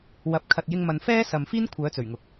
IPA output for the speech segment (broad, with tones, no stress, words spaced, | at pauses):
wɐ˨˥p̚ kʰɐ˨t̚jɪ˧ŋmɐ˨nfɛː˥ sɐ˨mfiː˥n kʷʰœː˨˧t͡sɵ˨˩ɥŋʊ˨k̚